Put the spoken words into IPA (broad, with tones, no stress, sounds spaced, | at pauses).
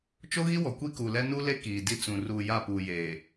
t͡ʃ o˦ ɣ i˦ w ɔ˨ kʷ i˦ k uː˨ l ɛ˦ n u˦ l e˦ k iː˨ d i˦ t͡s ũ˨ r uː˨ j a˦˨ p uː˨ j eː˨